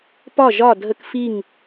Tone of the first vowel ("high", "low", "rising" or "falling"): falling